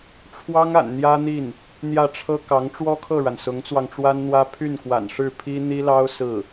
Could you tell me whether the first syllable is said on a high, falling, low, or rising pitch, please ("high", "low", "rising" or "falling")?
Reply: high